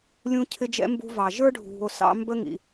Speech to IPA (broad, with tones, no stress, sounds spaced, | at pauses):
lʲ ũ˦ cʰ ɪ˦ d͡ʒ ɛ̰˦ m b ṳ˧ v ɑ˨ ʒ ə˞˦ ɖʱ ṳ˨ o̯ s ɑ̰˧ m b ə˦ ŋ ḭ˨